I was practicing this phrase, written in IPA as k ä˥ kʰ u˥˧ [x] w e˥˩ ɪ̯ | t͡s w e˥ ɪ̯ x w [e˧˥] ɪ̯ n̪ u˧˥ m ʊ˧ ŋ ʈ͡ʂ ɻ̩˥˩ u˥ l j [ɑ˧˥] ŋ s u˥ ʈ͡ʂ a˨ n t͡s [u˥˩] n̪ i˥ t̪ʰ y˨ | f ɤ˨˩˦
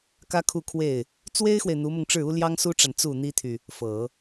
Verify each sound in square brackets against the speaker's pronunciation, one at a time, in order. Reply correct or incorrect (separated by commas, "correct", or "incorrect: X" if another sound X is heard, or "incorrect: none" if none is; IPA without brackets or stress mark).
incorrect: kʰ, incorrect: e˨, incorrect: ɑ˥, correct